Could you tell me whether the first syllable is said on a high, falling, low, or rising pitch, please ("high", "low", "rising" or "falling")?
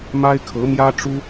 high